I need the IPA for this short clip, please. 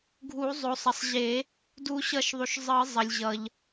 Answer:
ɡʱ u˨˩˦ zˤ o˩ sˤ ʌ˩ sˤ ʑ e˨˩˦ | d u˨˩˦ ɕ ʌ˨˩˦ ʃ ðˤ u˩ ʃ zˤ ɯ˨˩˦ zˤ ʌ˩ lʲ ʑ ʌ˩ ʎ

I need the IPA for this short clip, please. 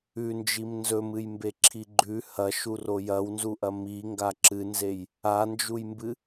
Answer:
ʉ n d͡ʒ i m n z ɵ m ɨ j m b e ǁʰ i ɡ͡ǃ ʉ h ɐ ʃ u r o j ɐ w n z u ʔ ɐ m i ŋ ɡ a ǁ ɨ n z e j | a n d͡ʒ u j m b ɨ

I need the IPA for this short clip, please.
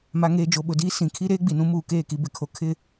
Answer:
m a˨ ŋ eː˨ d͡ʒ o˨ ɓ ʊ˨ d iː˦ s ĩ˨ kʰ i˦ ɾ eː˦ ɡ͡b i˨ n ũ˦ m uː˨ k eː˦˨ k i˦ b ɪ˨ kʰ o˦ kʰ ɪ˦˨

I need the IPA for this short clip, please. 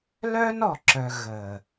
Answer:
l œ˦ n ɔ˨ ǁ œ˨ ɣ ə˨

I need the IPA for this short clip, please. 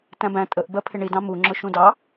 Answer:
t æ̃ b æ̃ tʼ ə ʔ b ɜ pʰ ɪ ɳ i d ɑ̃ m u ŋ͡ǁ ʊ ʃ ũ d ɑ

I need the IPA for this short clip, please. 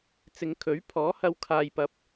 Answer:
t͡s ɪ˨˧ ŋ kʰ ɵ˨˥ ɥ pʰ ɔː˨˥ h ɐ˧ w kʰ aː˧ j p ɐ˧ p̚

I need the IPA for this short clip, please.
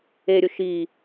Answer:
e ɾʲ ʊ ʃ i

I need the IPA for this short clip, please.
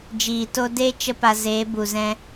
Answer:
d͡ʒ iː˨ t o˦ d e˦ t͡ʃ ə˦ p a˧ z eː˨˦ b u˨ z ɛ̃˧

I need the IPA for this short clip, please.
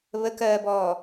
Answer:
β ə k ɜː b ɔː

